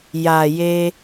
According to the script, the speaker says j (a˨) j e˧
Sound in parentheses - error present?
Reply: no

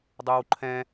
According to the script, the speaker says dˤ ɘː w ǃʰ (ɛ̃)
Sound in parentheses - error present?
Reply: no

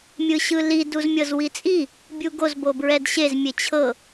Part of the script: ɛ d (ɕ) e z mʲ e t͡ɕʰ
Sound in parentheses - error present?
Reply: no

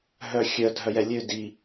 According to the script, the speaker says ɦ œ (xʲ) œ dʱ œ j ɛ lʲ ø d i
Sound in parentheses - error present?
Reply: no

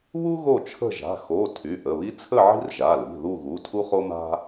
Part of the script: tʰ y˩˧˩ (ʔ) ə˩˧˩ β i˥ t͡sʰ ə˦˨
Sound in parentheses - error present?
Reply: no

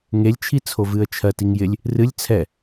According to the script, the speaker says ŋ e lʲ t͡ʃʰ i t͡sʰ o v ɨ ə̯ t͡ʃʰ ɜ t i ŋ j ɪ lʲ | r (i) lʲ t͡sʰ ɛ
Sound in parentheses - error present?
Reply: yes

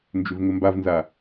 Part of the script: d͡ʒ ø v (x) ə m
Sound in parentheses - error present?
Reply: yes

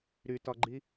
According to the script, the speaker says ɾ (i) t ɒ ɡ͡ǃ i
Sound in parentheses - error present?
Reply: yes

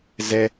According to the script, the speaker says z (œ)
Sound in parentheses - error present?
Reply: yes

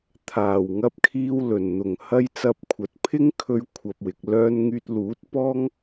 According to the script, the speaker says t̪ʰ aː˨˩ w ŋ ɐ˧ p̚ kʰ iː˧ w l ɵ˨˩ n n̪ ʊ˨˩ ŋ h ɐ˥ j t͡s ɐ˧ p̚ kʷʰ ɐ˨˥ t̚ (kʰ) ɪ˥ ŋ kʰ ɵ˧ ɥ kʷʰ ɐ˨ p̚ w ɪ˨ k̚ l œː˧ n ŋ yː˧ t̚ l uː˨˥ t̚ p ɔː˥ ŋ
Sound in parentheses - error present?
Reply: yes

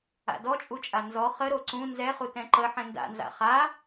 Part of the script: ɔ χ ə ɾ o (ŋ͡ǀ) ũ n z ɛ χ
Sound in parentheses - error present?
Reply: yes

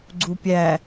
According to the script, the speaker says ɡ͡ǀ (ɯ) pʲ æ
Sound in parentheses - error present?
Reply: yes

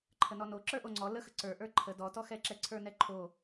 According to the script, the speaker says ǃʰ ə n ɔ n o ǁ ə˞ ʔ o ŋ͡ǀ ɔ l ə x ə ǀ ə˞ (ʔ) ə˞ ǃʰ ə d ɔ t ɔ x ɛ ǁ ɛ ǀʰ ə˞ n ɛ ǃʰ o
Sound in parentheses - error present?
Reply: no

